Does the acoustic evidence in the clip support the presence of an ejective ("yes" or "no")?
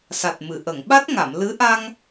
no